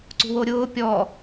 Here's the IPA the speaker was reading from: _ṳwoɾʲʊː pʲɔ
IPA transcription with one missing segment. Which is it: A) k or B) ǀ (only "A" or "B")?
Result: B